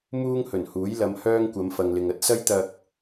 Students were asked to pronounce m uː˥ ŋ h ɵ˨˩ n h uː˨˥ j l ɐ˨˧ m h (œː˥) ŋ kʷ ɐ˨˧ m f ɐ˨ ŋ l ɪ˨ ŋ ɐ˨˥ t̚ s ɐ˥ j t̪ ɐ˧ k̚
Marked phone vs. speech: correct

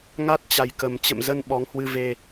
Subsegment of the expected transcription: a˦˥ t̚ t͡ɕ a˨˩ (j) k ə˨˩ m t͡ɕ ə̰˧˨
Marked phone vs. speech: correct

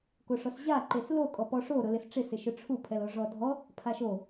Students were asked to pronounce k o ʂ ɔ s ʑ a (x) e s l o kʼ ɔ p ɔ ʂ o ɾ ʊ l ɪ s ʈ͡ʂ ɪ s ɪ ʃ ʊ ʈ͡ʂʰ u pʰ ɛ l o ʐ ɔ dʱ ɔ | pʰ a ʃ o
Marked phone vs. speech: incorrect: ǃ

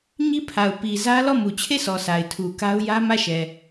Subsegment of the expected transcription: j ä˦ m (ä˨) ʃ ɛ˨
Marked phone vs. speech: incorrect: ä˦˨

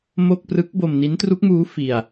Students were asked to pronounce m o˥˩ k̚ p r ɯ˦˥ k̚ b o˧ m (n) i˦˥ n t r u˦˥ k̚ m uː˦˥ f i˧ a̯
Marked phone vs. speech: correct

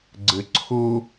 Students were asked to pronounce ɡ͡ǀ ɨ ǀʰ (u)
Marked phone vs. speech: correct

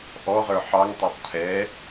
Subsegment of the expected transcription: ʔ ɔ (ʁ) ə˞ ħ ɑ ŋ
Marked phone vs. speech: correct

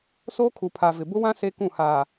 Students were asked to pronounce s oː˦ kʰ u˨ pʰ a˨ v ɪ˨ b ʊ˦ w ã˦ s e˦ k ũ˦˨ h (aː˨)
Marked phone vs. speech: correct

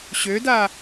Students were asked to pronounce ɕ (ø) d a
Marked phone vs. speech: correct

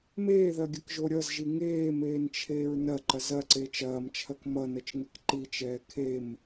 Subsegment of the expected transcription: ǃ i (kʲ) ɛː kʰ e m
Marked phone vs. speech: incorrect: t͡ʃ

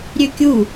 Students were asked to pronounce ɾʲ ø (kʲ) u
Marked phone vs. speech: correct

